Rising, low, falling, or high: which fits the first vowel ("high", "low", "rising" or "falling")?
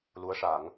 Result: rising